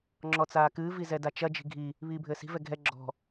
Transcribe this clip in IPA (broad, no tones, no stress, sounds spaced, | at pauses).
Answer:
ŋ͡ǁ ɔ t͡s aː k ɨː v i z ɛ d a t͡ʃ ɐ d͡ʒ i̤ ɡʱ i | β iː bʱ ɘː s i̤ v ɛ ɡʱ ɛ ɡ͡ǁ ɔ̤